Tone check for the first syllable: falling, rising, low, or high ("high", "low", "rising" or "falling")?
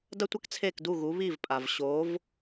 high